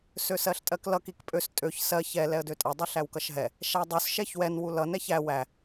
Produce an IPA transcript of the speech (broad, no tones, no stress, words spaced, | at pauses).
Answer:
søsɜɬtʼɜklʌk ikpʼøs tʼøç sɜ çɛ lɛə̯døtʼʌ dˤiɬæwkʌʃɦɛ | ʃædˤus ʃɛçwɛn wulʌ nɛçæ wæ